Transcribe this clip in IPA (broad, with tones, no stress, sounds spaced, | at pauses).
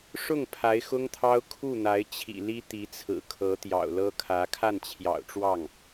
ʂ ʊ˥˩ ŋ pʰ a˧˥ ɪ̯ x ʊ˥ ŋ t̪ʰ ɑ˥ ʊ̯ kʰ u˥˩ n̪ a˧˥ ɪ̯ t͡ɕʰ ḭ˨˩ l i˥ t̪ i˧˥ t͡sʰ ɹ̩˨˩ kʰ ɤ˧˥ t̪ j ɑ̰˨˩ ʊ̯ l ɤ˥ kʰ ä˧˥ kʰ a˥˩ n t͡ɕʰ j ɑ̰˨˩ ʊ̯ ʈ͡ʂ w ɑ˥˩ ŋ